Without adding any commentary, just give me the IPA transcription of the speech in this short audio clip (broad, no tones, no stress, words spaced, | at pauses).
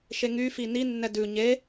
ʃeŋy fini nːɛdʉ ɲe